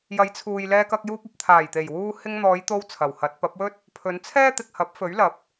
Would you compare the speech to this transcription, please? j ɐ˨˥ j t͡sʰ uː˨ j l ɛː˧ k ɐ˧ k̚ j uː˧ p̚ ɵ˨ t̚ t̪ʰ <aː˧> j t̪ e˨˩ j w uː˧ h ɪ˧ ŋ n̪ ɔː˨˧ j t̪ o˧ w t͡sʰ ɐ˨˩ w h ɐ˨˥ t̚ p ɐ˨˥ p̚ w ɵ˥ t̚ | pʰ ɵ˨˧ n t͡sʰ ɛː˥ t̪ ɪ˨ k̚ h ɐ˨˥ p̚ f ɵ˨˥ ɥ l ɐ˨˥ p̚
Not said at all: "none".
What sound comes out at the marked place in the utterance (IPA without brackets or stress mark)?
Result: aː˨˩